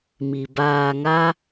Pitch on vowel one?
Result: low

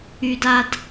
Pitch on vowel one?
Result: high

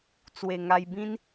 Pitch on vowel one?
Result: low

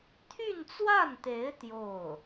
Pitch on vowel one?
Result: falling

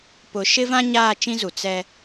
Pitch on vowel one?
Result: low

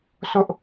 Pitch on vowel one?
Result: high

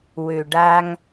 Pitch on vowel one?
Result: low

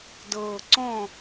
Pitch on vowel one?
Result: low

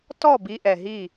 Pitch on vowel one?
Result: falling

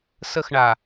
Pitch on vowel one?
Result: falling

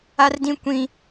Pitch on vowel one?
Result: high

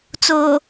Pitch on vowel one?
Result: low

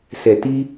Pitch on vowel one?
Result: low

